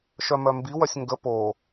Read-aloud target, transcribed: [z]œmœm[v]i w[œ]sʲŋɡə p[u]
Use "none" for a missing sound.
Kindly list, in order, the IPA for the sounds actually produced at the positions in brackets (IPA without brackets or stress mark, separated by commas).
ʃ, b, œ, o